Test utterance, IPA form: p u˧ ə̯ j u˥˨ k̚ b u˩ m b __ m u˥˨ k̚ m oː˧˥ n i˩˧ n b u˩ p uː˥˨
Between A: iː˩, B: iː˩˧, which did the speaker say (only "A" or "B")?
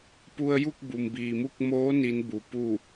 A